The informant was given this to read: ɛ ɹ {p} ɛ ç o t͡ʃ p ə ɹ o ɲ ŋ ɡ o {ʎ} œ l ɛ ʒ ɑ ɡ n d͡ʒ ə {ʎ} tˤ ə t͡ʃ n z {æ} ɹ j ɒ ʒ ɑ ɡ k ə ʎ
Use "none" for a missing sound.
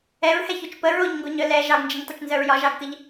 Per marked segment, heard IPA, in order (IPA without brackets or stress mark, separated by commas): h, ɲ, ɲ, œ